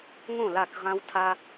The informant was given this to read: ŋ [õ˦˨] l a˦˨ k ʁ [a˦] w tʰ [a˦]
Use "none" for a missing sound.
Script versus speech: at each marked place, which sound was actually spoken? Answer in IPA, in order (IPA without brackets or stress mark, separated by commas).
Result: õ˦˨, ã˦, a˦